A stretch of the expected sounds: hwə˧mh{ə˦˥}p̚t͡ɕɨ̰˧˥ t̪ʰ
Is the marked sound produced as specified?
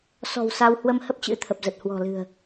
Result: yes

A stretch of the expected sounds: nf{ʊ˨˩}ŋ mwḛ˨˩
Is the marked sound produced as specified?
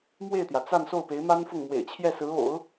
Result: no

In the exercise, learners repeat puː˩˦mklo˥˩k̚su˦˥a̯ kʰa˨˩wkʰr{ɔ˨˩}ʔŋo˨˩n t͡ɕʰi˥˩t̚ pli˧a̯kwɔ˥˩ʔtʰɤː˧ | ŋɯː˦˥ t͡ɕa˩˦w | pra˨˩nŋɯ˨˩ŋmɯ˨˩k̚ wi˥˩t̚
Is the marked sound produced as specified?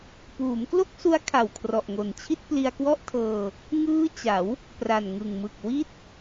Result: yes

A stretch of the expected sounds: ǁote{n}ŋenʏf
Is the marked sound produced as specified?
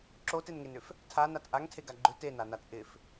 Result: yes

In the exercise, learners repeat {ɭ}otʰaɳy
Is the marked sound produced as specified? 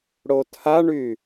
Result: no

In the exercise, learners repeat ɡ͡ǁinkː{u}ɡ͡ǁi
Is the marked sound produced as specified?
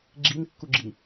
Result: yes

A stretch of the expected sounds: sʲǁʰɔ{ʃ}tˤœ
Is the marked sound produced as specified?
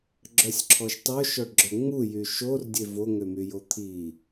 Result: yes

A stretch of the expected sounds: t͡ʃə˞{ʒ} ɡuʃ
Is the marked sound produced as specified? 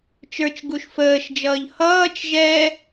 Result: no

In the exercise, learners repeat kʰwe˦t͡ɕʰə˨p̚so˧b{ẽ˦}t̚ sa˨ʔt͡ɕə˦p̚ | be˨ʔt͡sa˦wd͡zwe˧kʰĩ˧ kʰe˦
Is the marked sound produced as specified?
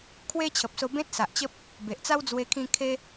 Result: yes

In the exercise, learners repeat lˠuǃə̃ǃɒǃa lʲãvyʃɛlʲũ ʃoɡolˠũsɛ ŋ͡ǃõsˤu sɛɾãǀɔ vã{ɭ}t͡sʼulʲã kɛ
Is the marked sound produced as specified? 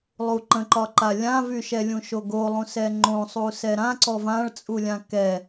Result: yes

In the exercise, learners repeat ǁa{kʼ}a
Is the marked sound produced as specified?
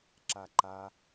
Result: no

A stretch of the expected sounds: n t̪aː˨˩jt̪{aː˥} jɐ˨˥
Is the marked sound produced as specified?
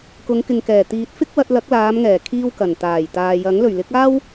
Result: no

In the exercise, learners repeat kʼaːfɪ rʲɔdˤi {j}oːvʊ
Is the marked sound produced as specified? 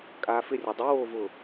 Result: no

